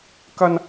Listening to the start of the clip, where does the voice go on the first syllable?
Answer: high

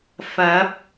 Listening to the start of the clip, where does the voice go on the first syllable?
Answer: rising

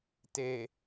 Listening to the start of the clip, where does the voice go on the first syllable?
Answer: low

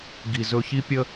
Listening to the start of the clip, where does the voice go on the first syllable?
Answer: low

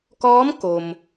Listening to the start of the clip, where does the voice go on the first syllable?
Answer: rising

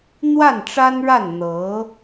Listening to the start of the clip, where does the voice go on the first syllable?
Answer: falling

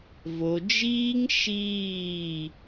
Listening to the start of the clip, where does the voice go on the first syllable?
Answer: low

